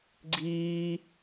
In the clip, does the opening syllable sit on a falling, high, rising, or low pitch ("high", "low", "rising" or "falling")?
high